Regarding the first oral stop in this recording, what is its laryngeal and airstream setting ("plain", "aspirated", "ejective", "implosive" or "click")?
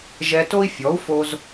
plain